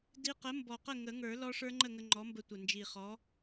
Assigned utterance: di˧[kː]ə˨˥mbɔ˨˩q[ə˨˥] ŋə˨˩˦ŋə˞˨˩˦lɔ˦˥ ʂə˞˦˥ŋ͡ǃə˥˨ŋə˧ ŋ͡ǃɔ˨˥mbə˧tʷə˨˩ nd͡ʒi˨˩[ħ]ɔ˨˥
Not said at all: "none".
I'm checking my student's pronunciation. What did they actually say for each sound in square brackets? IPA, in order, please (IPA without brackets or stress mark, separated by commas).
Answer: q, ə˥˨, χ